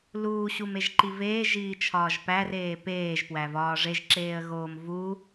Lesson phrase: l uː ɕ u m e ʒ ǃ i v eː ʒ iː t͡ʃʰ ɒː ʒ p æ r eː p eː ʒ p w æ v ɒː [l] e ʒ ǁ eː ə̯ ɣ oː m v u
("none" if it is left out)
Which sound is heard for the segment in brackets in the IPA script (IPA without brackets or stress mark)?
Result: ʐ